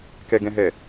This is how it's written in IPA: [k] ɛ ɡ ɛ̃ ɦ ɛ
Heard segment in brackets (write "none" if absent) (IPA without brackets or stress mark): k